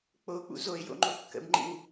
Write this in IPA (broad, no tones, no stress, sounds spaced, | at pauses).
k͡p o k͡p ṵ z o ɪ̯ j o̰ ŋ͡ǃ o kː ə̰ b ŋ͡ǃ ḭ w